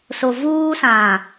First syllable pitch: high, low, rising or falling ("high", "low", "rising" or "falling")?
low